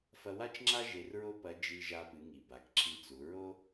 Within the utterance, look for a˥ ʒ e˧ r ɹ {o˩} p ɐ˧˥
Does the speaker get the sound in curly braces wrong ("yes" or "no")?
yes